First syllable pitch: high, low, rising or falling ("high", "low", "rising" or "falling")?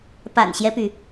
low